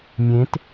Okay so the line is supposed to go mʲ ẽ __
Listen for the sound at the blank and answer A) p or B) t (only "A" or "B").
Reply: B